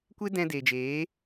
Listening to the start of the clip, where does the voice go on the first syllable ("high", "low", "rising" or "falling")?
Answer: high